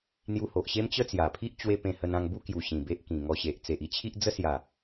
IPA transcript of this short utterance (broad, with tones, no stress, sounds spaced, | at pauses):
n̪ j u˧ h o˨ ʔ ɕ e˦ m t͡ɕ ə˦ t͡s j a˨˩ pʰ i˦ ʔ t͡ɕ w e˦ p ẽ˧ h ə˧ n ã˧ ŋ b u˦ k j u˨˩ ɕ ĩ˨˩ b e˦ ʔ k ĩ˨˩ ŋ ɔ˧ ɕ e˨ ʔ t͡s e˨ ʔ i˦ t͡ɕʰ i˦ ʔ d͡z ə˦ s j a˨˩